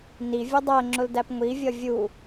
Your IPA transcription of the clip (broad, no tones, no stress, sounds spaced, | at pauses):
n i vʲ ʊ dˤ ɜ ŋ͡ǁ ʊ l d æ p ŋʷ i vʲ ʌ vʲ u